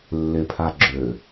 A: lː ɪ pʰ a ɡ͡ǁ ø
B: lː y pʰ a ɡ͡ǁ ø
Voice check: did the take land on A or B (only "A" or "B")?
A